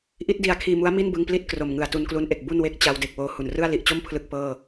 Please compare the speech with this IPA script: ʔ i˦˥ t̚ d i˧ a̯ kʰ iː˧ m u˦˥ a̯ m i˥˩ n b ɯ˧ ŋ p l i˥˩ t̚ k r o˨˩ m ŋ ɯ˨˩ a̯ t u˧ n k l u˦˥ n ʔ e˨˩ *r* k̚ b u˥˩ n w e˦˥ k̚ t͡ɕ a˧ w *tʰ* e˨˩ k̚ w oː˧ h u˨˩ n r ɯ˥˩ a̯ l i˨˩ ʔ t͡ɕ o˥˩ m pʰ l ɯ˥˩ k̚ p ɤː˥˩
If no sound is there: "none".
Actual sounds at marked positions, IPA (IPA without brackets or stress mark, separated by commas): none, d